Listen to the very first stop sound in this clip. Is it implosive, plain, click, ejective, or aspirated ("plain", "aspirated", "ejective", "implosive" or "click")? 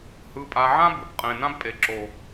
ejective